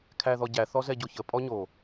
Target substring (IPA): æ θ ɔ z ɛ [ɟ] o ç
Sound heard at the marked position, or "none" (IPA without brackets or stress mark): ɟ